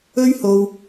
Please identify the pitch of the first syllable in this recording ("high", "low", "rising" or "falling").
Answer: high